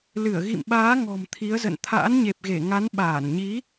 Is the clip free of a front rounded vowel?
yes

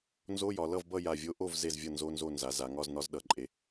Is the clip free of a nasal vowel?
yes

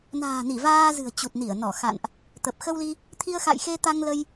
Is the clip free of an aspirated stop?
no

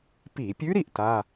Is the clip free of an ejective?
yes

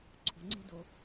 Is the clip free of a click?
no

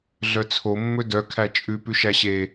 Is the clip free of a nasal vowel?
yes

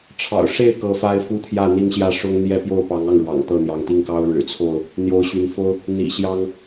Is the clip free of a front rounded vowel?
no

